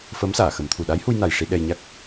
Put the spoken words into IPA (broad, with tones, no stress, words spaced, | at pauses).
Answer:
fəː˧˥msaː˨˩˨xə˨˩˦mt̪ʰu˨˩ ɗa˧˥jhu˧jna˨˩j ʂi˧ɗɛ˧jɲa˦˥k̚